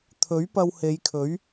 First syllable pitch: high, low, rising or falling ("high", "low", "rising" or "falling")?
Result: rising